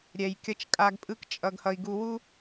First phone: ɾʲ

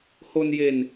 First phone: h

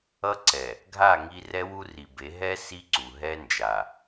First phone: ʌ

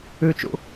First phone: ʉ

